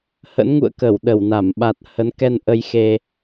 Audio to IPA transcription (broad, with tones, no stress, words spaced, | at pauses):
hə̰˧˥nŋṵ˧˨ə̯ kə˧˩wɗə˧˩wna˧˩m ɓa˨˩t̚hə˨˦nkɛ˧nʔə˧j xe˧